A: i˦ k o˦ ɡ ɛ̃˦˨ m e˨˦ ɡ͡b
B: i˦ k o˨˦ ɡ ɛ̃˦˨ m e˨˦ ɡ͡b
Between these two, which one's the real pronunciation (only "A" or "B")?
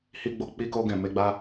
A